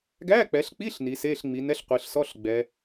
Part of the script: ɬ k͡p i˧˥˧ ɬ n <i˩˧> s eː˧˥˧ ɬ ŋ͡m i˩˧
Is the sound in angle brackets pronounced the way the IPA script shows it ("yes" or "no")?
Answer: yes